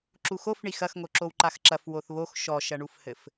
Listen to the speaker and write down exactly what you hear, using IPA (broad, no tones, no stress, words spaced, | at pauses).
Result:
ǁuxofɳi xɐxŋoǁow ǃaxǁɐf woθβox ʃɔʃɐɳufhɘf